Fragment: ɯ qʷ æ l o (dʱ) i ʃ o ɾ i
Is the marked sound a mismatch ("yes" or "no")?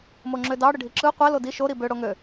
yes